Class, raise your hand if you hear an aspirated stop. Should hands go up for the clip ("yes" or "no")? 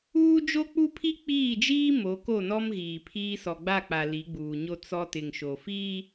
yes